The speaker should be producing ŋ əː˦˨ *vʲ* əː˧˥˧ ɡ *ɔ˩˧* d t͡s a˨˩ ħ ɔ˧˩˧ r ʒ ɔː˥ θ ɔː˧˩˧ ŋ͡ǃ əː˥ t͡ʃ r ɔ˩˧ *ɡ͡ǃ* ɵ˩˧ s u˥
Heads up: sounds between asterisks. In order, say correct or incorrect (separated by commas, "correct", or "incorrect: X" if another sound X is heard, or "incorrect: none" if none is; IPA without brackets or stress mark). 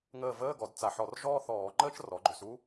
incorrect: v, correct, correct